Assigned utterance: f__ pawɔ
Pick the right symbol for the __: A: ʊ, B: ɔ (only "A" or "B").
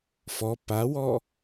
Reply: B